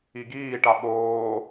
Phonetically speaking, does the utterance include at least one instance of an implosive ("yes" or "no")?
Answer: yes